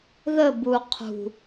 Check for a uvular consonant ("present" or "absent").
present